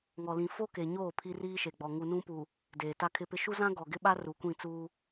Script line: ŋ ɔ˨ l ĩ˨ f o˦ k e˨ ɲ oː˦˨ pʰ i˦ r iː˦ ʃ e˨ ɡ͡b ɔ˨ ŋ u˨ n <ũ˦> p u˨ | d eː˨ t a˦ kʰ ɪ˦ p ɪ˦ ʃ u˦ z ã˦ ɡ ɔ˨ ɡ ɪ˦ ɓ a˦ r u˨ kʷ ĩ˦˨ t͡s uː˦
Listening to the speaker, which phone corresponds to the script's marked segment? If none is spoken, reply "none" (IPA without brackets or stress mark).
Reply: ũ˦